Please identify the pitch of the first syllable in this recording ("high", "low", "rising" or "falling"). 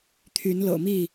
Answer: rising